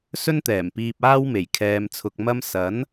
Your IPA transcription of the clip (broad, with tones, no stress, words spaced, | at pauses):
sɵ˥nt̪ɛː˨˩mpiː˧p̚ aː˥wme˨˩j kʰɛː˧mt͡sʰʊ˧k̚ mɐ˥m sɐ˨˥n